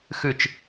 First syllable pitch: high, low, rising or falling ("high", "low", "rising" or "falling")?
falling